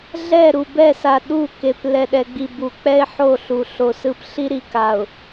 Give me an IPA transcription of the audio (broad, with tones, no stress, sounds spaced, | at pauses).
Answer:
ɮ ɛ˦˨ ɾ u˨ b ɛ˦˨ s a˨ ɗ u˦˨ k e˨ p l ɛ˨ ɗ ɛ˨ ɡ͡b i˨ b u˨ k͡p ɛ˦ ɪ̯ ħ o˦˨ ɬ u˨ ɬ o˨ s ɯ˦˨ p ɬ i˦ ɾ i˨ k a˨ ʊ̯